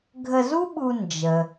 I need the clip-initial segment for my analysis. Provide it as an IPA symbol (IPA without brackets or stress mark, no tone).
ɡʱ